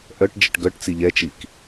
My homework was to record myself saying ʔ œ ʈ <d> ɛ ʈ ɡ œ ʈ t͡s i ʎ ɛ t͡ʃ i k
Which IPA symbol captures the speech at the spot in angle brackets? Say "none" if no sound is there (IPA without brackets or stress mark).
d͡ʒ